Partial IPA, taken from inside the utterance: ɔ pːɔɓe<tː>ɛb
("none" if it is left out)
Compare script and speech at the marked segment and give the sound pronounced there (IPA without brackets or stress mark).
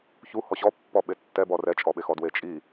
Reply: tː